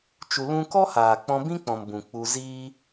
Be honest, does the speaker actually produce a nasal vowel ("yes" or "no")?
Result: yes